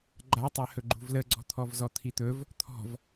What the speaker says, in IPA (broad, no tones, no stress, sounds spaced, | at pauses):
ɡ͡ǃ a tˤ a h ɵ ɡ͡ǃ ṳ v l ə ɡ͡ǀ ɔ̤ t̪ʰ ɔ v z ɔ t̪ʰ i t̪ ɵ v | t̪ʰ ɔ̤ v